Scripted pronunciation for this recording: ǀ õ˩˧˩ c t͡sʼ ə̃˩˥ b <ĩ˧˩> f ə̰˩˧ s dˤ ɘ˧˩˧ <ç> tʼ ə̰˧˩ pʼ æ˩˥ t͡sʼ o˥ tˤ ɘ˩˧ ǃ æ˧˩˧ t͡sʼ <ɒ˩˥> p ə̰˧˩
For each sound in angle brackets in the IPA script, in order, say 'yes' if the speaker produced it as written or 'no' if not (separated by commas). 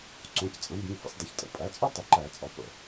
no, yes, yes